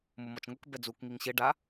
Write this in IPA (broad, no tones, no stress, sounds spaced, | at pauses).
m ʊ m ɔ t͡ʃ ŋ ʊ k b ɛ d͡z u k ŋ i ŋ ɕ ɪ ɖ a